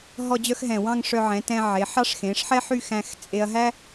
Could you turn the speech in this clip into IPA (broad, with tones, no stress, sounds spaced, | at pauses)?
ɦ ɔ˥˧ d͡ʑ œ˥ x ɦ ɛ̃˧˩ w ɑ̃˥˧ ŋ ʂ œ˧ ʕ ɛ̃˩˧ t ɛ̃˧ ʕ e˩˧ ħ ɑ˥ ʂ x ẽ˩˧ ʂ ħ ɛ˥ ħ y˥˧ x æ̃˧ x t͡sʼ e˧ ɐ̯ ɦ æ˥